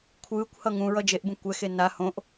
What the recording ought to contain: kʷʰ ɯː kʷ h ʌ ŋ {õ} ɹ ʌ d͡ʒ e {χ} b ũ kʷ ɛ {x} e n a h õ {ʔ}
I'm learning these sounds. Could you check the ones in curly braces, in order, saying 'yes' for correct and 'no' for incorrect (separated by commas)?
no, no, yes, yes